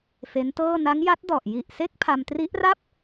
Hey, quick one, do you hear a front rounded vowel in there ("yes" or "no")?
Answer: no